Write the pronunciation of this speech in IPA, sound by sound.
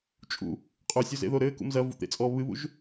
t͡ʃʼ ṵ | qʼ o sʲ o z ḛ ð o ɾ ɘː k ṵ m z ɐ v ṵ t̪ ḛ t͡sʼ ɔ β ɨ β ṵ ʒ

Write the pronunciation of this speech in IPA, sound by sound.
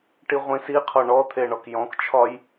ʈ i ʁʷ ĩ s i qʰ ɔ ɳ ɔ t̪ʰ e ɳ ɔ k j ɔ̃ k t͡ʃʰ ɒ j

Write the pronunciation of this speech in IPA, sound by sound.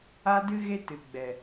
a˦ d ɨ˦ ɣ e˦ t ɨ˨ ɡ͡b ɛ˨

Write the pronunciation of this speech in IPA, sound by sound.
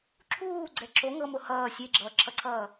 ǁʰ uː ɡ͡ǀ ɛ ǁ o ŋ ɤ m o h ʌː sʲ e ɡ͡ǁ ʌː ǁʰ ʌ ǀʰ ʌː

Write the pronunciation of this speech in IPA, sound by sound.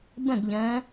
b ə̃ ɡ ʎ ə̃ː

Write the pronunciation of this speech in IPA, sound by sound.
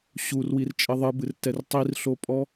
ɕ u r w i r t͡ʃʼ ɘ ðˤ ɨ b ɨ r t ɛ r tˤ i r ɬ o pʼ ɔ

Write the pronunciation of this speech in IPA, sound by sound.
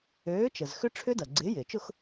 øː˨˥ t͡ʃ ə˩ z x ʏ˦˥ ʈ͡ʂʰ ʏ˦˥ d ɐ˩ ɡ͡ǀ ɪː˨˥ j ɪː˩ t͡ʃ ʊ˥˧ x

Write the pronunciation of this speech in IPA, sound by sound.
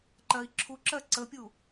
ǃ ɜ i̯ ǁʰ u ǁ ɜ ǀ ə pʲ u

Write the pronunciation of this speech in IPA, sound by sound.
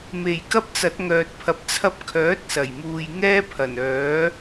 m e˨˩ j k ɐ˥ p̚ t͡s ɐ˨˥ t̚ ŋ œː˨ t̚ pʰ ɐ˨˥ p̚ t͡sʰ ɐ˥ p̚ kʰ œː˨˥ t̚ s ɐ˨˩ j m uː˨ j ŋ ɛː˥ pʰ ɐ˨˩ n œː˨˥

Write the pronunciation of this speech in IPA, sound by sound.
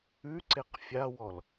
ʉ ǀ e q fʲ a w ɔ l

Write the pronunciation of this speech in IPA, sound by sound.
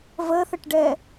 v ə θ ə ʈ ɖ ɛ

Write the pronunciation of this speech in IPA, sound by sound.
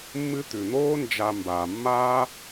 mː ɨ˦ t̪ ʉ˩ n̪ oː˥ n d͡ʒ a˨ m b a˩ mː a˥

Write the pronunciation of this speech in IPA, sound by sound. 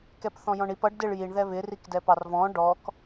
k ɛ p θ ɔ̃ j ɔ̃ ɳ i p ʌ ɖ d ɪ ɭ j i ɳ ð ɛ β ɪ r i k d ɛ p ɑ r v ɔ̃ ɖ ɔ k

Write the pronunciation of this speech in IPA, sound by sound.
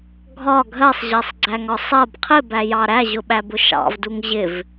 ɡʱ ɒ ɡʱ ɜ sˤ ʑ ɜ sˤ ɡ͡ǀ æ ŋ ɒ sˤ ɜ b qʰ ɪ b æ j ɑ ɾ æ ʑ ʊ ɓ æ b ʊ ʃ ɑ̰ v d u ŋ ʑ ɪ v

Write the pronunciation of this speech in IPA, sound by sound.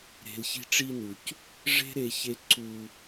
ɾ e̤˨ l ç i̤˧ ʈ͡ʂ i˧ n u˨ c | ʐ e̤˦ ɾ e˧ ç e˧ ǀ u˧

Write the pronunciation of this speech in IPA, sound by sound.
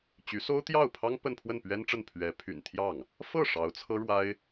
t͡ɕ y˧˥ s o˥ ʊ̯ t̪ j ɑ˥˩ ʊ̯ pʰ ɑ˥ ŋ p ə˥˧ n pʰ w ə˥˩ n p ɥ ɛ˥ n ʈ͡ʂ ə˥˩ n pʰ ɥ ɛ˧˥ pʰ y̰˨˩ n t̪ʰ j ɑ˥˩ ŋ | f ɤ˥˩ ʂ ɑ˧˥ ʊ̯ t͡sʰ ɤ˥ ɻ w a˥ ɪ̯

